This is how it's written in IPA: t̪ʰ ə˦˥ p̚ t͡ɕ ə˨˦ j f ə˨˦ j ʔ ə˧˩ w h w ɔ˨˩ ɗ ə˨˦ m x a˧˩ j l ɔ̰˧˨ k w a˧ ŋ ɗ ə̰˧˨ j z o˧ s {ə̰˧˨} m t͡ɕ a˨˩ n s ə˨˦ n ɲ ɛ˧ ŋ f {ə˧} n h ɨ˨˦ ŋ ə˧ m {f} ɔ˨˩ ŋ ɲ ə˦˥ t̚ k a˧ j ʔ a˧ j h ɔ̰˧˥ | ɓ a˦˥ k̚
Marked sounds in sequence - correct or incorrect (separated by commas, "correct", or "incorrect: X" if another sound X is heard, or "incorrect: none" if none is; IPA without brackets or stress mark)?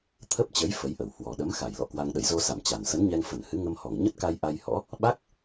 incorrect: a̰˧˨, incorrect: ə˧˩, incorrect: h